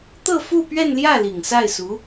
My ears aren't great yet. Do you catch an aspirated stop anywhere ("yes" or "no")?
no